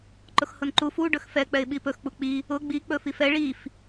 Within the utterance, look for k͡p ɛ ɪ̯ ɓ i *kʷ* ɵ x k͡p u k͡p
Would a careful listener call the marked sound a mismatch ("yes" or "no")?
yes